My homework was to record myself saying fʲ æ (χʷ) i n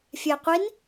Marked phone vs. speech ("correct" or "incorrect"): incorrect